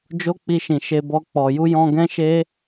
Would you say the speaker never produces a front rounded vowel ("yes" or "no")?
yes